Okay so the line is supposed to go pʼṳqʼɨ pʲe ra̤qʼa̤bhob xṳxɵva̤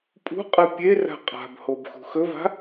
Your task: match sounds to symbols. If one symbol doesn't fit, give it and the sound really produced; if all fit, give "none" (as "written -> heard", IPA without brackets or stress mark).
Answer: none